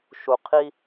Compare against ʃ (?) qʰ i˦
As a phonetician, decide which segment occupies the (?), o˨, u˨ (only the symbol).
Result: u˨